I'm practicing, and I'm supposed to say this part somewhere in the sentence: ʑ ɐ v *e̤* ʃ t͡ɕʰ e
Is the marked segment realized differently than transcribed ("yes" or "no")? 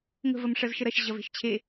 no